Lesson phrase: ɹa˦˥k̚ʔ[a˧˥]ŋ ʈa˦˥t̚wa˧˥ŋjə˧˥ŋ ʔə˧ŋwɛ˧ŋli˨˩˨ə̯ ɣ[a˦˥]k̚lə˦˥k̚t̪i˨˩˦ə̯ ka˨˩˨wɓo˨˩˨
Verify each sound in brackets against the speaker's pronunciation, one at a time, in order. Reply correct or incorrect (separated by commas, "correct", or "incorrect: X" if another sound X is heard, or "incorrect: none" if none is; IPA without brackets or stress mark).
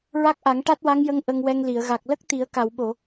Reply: incorrect: a˨˩˦, incorrect: a˨˩